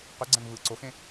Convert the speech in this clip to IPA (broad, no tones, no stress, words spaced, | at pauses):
qy ɡ͡ǀæ̃ŋvɯ ǀoxẽ